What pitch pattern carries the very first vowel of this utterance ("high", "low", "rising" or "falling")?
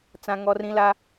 high